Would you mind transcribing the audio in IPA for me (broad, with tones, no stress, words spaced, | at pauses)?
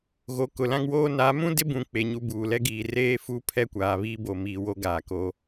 ɣo˨ kʊ˨lã˦ŋwoː˦ na˨˦mũ˦dɪ˦bũ˨ k͡pe˨ ɲu˦buː˨ lɛ˦ɡiː˨ reː˦fuː˦pʰɛ˦˨kʷaː˨ βiː˦bo˨miː˨ wo˦ɡaː˨ ko˦